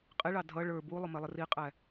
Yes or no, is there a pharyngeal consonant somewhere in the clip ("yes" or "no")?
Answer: no